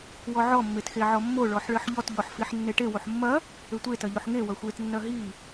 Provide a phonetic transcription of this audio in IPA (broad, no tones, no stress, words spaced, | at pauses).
wɔʕɔ mːetxeʕɔmːo ɭɔħɭɘħʎɔt ʎɔħfiħnːeʈe woħmːɐ | ɘtʷe tɐʎoħŋe wɐxʷet nːɐɦi